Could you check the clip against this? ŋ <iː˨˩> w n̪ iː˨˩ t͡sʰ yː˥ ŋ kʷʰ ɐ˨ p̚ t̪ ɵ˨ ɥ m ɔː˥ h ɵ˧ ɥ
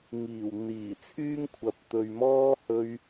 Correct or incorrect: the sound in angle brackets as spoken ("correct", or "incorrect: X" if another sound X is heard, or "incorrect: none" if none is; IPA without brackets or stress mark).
correct